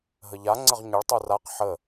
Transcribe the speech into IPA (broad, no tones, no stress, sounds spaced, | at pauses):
ɦ ə ʎ a ŋ͡ǀ ə ʁ ɲ ə ɭ tˤ u r a q ħ ə